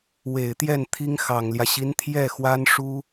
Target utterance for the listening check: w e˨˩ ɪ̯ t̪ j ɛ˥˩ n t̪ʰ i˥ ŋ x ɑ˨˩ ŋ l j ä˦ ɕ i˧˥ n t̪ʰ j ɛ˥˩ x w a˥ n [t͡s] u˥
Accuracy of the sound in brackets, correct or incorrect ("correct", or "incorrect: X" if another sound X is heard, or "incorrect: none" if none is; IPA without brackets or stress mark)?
incorrect: ʂ